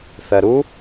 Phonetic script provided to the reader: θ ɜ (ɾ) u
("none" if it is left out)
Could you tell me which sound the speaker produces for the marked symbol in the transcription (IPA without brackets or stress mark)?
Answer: ɾ